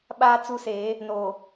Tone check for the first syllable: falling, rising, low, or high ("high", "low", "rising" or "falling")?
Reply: high